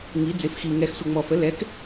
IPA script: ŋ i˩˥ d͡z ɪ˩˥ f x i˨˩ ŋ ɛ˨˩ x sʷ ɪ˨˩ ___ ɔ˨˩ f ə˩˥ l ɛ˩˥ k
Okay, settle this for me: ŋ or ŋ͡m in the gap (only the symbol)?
ŋ͡m